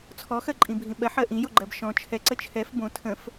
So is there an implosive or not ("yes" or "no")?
yes